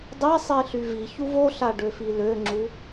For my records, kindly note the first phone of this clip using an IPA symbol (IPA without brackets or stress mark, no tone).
dˤ